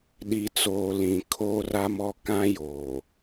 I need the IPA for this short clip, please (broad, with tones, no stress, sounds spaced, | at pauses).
ɗ i˨ t͡s oː˨ l ĩ˨ kʰ oː˦ r a˦ m ɔ˦ k ã˦ j oː˨